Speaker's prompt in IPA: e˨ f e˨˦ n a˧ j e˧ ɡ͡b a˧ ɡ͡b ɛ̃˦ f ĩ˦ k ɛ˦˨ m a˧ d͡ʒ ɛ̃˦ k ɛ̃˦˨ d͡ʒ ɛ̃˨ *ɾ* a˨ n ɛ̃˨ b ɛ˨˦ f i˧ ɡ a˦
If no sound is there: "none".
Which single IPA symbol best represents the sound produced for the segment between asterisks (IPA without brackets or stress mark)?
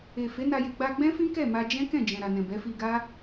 ɾ